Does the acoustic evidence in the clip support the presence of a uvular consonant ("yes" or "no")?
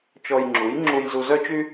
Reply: no